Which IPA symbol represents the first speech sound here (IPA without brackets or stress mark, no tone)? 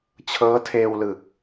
t͡ɕʰ